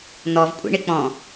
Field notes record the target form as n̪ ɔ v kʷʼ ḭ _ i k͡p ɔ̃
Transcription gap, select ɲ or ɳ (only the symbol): ɳ